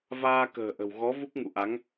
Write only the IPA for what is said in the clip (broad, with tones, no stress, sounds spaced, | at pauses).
v aː˧ k ə̤ː˨˩ ʔ ə̤˨˩ w ɣ ɔ˨˦ v u˦˥ k̚ ŋ ṵ˧˨ ʔ a˨˦ ŋ